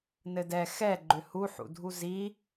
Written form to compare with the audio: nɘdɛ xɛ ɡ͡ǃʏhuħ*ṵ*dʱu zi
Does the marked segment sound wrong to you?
no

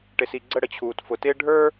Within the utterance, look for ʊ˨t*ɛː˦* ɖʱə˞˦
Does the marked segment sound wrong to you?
yes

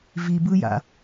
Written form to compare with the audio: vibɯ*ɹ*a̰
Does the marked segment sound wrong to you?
yes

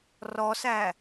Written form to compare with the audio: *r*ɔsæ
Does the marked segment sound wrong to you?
no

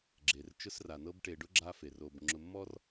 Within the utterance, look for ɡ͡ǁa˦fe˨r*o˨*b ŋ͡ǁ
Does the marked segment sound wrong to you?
no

